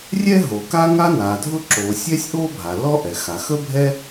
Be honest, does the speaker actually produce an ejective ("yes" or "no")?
no